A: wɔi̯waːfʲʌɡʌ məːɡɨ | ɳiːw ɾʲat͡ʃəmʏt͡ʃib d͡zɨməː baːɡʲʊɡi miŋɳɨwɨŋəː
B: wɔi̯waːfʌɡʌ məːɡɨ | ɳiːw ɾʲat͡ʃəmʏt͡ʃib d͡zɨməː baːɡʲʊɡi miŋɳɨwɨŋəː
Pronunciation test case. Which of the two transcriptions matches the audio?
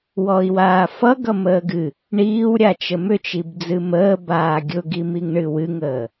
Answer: B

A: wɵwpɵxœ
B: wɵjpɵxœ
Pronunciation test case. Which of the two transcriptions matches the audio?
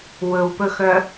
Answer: A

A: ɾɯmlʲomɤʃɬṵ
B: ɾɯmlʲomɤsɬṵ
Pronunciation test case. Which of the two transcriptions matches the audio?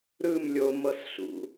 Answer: B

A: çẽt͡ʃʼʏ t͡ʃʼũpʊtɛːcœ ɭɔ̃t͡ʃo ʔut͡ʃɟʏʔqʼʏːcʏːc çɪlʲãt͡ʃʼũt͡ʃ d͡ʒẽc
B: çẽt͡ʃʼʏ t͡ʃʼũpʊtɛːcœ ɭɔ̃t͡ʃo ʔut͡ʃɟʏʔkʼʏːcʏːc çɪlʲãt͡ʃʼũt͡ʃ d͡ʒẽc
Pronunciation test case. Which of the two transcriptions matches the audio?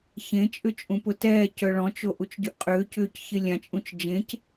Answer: A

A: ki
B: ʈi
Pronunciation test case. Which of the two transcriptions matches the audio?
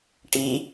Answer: B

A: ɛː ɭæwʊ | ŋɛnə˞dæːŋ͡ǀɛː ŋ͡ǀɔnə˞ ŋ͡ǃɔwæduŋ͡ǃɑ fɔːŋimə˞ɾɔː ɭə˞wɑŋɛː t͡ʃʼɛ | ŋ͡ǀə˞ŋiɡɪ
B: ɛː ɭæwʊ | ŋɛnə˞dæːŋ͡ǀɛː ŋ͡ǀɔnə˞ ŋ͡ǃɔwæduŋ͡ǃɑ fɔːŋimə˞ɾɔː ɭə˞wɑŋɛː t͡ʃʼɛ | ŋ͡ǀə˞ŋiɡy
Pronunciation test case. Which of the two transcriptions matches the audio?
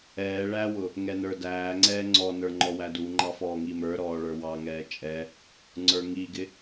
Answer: A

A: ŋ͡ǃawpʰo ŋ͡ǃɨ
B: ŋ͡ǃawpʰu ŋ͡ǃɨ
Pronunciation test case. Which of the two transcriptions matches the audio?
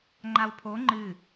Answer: A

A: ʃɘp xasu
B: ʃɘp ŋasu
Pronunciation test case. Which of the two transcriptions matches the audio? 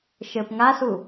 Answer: B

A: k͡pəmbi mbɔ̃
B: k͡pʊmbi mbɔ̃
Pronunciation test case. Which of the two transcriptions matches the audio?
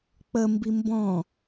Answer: A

